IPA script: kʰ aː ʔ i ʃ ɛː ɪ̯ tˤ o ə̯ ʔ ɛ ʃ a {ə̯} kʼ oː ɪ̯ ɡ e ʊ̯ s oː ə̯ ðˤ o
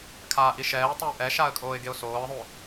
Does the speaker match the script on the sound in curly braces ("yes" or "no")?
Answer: yes